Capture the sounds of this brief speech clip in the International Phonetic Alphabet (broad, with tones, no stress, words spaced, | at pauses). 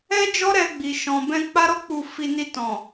ɛ˦d͡ʒɔ˦ ɾɛ˧ ɡ͡bi˨ʃɔ̃˨bɛ̃˧ k͡pa˦ɾɔ˦k͡pu˧ fi˧ni˧tɔ̃˨